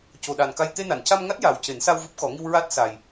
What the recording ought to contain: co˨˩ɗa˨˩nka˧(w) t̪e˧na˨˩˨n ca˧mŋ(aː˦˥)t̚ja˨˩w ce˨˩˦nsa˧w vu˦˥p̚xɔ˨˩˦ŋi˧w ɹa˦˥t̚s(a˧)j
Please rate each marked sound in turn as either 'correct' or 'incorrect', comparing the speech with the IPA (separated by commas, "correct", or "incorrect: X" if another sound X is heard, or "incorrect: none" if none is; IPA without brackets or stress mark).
incorrect: j, incorrect: a˦˥, incorrect: a˨˩